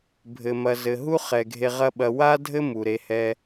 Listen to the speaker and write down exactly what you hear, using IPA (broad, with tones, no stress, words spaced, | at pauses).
bʱɘ˨ mɐ˨zɘ˨ɦu˦ χɛ˨ɡʱe˧ ʁɐ˦ɓɐ˧ wa˦dʱɘ˦ mu˨ɾe˧ hɛ˦